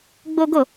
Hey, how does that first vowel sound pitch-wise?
high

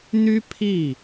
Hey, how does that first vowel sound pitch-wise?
high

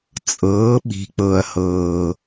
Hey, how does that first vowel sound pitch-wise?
rising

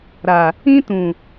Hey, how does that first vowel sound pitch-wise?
low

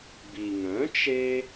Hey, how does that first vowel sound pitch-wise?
low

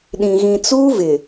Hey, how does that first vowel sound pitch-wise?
low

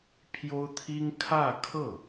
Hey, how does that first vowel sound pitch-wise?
high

